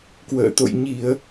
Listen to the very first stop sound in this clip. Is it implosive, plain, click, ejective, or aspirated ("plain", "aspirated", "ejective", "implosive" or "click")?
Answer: plain